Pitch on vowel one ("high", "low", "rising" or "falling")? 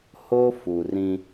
high